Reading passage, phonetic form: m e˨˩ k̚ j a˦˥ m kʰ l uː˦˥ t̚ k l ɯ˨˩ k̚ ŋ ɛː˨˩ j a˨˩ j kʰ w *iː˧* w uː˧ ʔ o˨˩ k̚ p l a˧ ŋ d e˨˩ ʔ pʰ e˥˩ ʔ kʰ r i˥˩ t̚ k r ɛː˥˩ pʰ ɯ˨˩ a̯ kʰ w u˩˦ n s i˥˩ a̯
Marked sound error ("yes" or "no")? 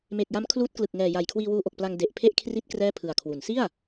no